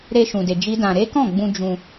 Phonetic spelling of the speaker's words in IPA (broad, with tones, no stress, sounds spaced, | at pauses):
ɾ e˧ ʃ ũ˨ d e˧ d͡ʒ i˦ d ã˧ ɾ e˦ k ɔ̃˦˨ ɡ͡b ũ˧ d͡ʒ ũ˧